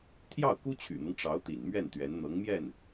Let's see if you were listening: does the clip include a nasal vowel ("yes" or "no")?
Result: no